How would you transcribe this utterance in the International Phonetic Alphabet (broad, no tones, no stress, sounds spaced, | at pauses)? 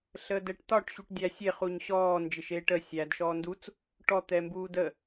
ɬ əː d ɛ ʈ t ɒ ʈ ɕ u ʈ dʲ æ sʲ e χ u ɲ ɕ ɔː n d͡ʒ ɪ ʃ eː ʈ ə sʲ æ d ʃ ɔː n d u t͡s | ʈ ɔ t̪ ɛ m b uː d ə